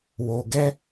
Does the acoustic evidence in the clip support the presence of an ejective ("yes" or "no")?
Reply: no